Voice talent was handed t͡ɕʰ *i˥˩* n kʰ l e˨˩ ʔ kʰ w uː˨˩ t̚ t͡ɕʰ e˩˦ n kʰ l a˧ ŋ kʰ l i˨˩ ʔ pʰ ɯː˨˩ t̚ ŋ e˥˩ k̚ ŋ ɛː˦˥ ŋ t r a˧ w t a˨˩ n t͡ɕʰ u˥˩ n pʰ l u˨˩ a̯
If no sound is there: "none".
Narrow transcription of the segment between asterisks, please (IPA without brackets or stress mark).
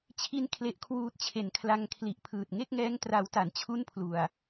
i˦˥